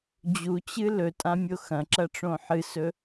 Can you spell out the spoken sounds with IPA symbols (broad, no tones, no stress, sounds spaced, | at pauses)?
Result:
d͡ʑ u t͡ɕ ɨ l ɵ tʼ ã mʲ o x ɐ̃ ǁ ɐ ʈ͡ʂ õ ħ ɨ s ɵ